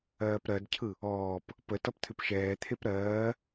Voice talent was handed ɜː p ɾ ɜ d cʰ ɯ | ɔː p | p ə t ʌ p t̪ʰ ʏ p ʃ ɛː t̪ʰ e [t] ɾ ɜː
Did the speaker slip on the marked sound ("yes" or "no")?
yes